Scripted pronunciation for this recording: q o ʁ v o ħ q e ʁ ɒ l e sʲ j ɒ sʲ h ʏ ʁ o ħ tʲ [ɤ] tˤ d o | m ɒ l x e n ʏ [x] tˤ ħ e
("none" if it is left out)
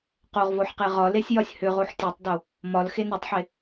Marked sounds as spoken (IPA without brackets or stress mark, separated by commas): ɤ, none